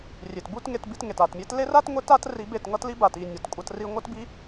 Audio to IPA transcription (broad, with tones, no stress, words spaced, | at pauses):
rʲe˨tbu˦t ŋe˧tbi˧tŋe˨t a˨tmʲe˧tle˦ra˦t ŋʷe˦ta˦t ri˧be˦˨tŋʌ˦tli˦ ba˨ti˦˨ nʲʌ˨tkʷʼʌ˧t ri˧ŋʷʌ˦tbi˦